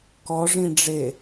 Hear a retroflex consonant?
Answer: yes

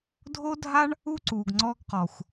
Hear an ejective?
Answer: no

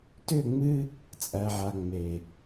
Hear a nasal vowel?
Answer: no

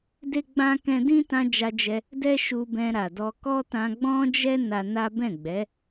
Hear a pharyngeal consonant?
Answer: no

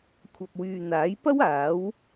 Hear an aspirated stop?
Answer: yes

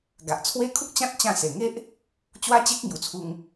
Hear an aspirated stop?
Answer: yes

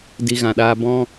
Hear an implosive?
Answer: yes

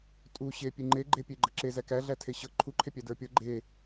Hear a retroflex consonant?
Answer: no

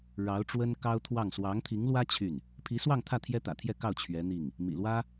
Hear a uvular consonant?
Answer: no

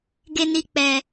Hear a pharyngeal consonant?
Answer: no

